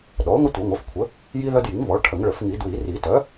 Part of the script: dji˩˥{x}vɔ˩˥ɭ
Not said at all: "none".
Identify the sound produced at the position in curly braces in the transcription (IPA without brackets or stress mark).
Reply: ŋ